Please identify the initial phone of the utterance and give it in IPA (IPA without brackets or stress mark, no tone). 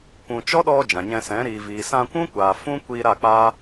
kʷ